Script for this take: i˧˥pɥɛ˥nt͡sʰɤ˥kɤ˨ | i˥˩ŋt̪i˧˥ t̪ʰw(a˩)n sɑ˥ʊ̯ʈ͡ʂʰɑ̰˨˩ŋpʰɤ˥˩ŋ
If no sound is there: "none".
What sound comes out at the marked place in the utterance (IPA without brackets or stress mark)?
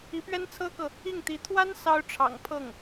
a˥